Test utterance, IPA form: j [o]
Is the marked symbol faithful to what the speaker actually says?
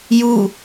no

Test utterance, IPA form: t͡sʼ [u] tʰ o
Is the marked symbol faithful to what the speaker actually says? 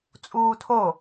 no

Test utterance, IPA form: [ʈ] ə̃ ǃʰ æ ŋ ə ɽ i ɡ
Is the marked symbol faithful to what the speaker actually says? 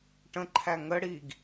yes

